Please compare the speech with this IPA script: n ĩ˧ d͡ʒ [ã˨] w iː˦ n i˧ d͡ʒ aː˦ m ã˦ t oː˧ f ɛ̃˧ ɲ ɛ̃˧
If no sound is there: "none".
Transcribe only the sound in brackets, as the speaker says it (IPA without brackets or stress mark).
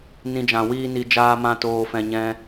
ã˨